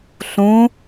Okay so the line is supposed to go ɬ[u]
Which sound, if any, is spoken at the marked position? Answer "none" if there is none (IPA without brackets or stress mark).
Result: ũ